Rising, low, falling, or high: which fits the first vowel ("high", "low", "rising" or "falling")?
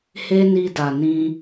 high